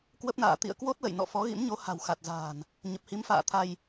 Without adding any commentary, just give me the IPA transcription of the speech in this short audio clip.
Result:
kwə˦˥p̚na̰ː˧˨ t̪ḭ˧˨ə̯kwo˦˥t̚lə̰˧˨j nɔ̰˧˨fɔ˨˦ɣḭ˧˥mɲo˨˦ ha̤˨˩wxa˨˩t̚za̤ː˨˩n | ɲə˨˩p̚hi˨˦mfa̰ː˧˨t̪ʰa˧j

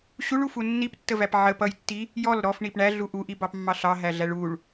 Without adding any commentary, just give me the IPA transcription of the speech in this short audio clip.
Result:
ɕuɭufu nːiptːəvæp ʕə pʌjtːi | jɔl ɾɔfɳip ɳæɮu ʔuʔibɑpmːɑ ɬɑɦæɮæɭ uɭ

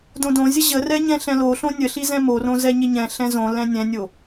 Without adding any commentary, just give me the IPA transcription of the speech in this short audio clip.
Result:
dõdõzʲə ʑərɛ ɲɛ̃ɬɛ̃loɬõ nʲəɬi zɛ̃morõ zɛɲɪɲɛ̃ɬɛ̃ zõ lɛ̃nʲɛ̃nʲo

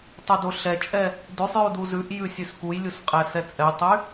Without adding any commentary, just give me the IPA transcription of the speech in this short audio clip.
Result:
tˤudoɬɛt͡ʃʼɛ | dʉsˤjudu zʉʔjʉsʲʉs kujlʲusqʼæ sɛt͡sʼɛjtˤy

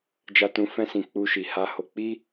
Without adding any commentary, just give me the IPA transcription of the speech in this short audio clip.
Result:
d͡ʒa˨tũ˨fɛ̃˧sĩ˨ k͡pu˧ʃi˨ ha˧ho˧k͡pi˦

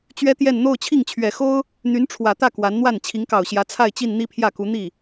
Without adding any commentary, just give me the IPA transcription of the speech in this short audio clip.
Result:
t͡ɕɥɛ˥t̪jɛ˥˧n n̪o˥˧ʊ̯t͡ɕʰi˥˩ŋt͡ɕʰɥɛ˨˩xo˥ʊ̯ | n̪y˧˥nʈ͡ʂʰwä˨˩t̪ä˥˩ kwa˧˥nn̪wa˥˩n t͡ɕʰi˧˥ŋkɑ˨˩ʊ̯ɕjä˧˥ t͡sʰa˥˧ɪ̯t͡ɕi˥˧n n̪i˥˧pʰjä˥˩ku˧˥ n̪i˥˩

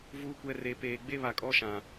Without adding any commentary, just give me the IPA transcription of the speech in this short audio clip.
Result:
vuː˨kʷɛ˨ re˨peː˨ ɡ͡be˦βa˨kʼɔ˦ʃã˨

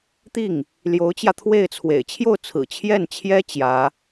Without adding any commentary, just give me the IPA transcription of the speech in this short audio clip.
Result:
t̪i˥˩ŋ | ljo˧˥ʊ̯t͡ɕjä˧t̪ʰwe˥˩ɪ̯t͡sʰwḛ˨˩ɪ̯ t͡ɕʰjo˥˩ʊ̯t͡sʰɹ̩˨˩ t͡ɕʰjɛ˥˩nt͡ɕʰjɛ˥ t͡ɕjä˧˥

